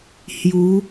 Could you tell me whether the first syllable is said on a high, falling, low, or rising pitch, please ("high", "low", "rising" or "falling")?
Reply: rising